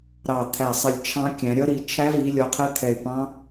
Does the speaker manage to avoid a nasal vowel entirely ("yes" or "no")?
no